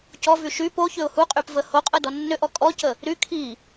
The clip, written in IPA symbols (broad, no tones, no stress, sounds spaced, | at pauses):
c ɔ v y ʃ y p o ç ʏ ʊ̯ h u qʼ y p v ə h o qʼ ə d ɔ nː ʏ ʔ ɔ kʼ ɔ c ə | ɾ y kʰ i